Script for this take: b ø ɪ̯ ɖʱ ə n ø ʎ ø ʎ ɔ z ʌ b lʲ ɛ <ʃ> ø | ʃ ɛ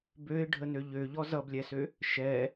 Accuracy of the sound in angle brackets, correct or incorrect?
incorrect